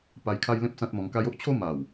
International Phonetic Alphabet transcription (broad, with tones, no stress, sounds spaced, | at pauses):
p a˧ j kʰ a˦ j l ẽ˦ p̚ s ã˦ t̚ m ɔ̃˧ ŋ k a˦ j o˦ ʔ t͡ɕʰ o˦ m a˨˩ w